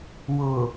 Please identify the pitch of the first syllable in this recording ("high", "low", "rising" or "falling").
low